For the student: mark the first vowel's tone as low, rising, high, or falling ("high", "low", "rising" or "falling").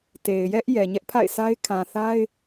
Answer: low